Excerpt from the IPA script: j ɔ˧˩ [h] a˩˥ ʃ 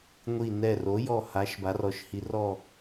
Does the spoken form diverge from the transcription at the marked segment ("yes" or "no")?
no